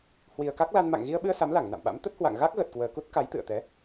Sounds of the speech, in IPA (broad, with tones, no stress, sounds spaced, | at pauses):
h w i˨˩ ə̯ k a˦˥ k̚ l a˧ n m a̰˧˨ ŋ ɣ i˧ ə̯ ɓ ɨ˧ ə̯ s a˨˦ m l a˧˩ ŋ n a̰˧˨ m ɓ a̰˧˥ m t̪ ə˦˥ t̚ h w a̰˧˨ ŋ ɣ a˦˥ k̚ ɣ ə˨˩ t̚ k w əː˨˩ k u˦˥ t̚ k a˨˦ j t̪ ɨ̰˧˨ ə̯ t̪ ɛ˨˦